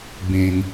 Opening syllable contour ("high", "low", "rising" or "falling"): low